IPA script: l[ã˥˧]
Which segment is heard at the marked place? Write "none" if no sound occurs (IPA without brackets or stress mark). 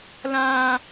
ã˧